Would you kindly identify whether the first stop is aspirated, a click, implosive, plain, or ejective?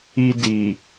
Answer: plain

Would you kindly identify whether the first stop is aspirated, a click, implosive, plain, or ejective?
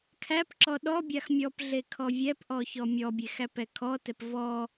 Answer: aspirated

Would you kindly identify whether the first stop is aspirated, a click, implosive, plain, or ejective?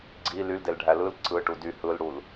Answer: click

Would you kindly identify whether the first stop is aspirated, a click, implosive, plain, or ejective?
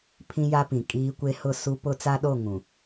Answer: aspirated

